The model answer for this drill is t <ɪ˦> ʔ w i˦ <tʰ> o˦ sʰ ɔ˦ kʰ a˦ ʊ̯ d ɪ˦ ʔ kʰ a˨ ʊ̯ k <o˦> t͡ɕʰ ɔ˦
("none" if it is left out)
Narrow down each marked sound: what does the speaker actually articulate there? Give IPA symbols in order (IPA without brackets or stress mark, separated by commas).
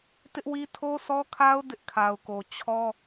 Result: ɪ˦, tʰ, o˨